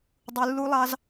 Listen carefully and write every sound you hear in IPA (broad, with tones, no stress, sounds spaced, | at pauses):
dˤ u˧ lː u˦ lˠ ɑ˦ z